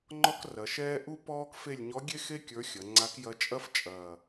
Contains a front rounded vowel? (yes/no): no